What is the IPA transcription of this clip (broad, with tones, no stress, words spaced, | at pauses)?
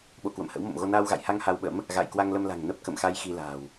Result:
ɓo̰˧˨ kwə̰˧˨mhə̰˧˥wmo̰˧˨mɣo˧ naː˧wɣa̰˧˨jha˧ŋ ha˧wɓə̰˧˥m | ɣa̰ː˧˨jkwa˧ŋlə˧mla̤˨˩ŋ nə˦˥p̚kə̰˧˨mxa˧j xi˧la̤ː˨˩w